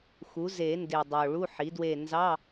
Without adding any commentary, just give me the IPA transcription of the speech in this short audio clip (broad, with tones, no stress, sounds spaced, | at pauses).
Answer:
x u˩˥ z e˨˩˦ n d e˨˩ dˤ o˨˩ ɭ u˧˥˧ ħ i˩˥ d w e˦˨ n z ɑ˧˥˧